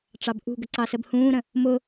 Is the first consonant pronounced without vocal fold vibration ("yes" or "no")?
yes